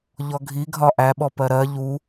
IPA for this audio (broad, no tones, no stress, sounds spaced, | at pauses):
ʎ ɔ ɡʱ i ɡʱ ɒ ʔ æ ɓ ɔ p ɜ ɾ ɜ ʎ u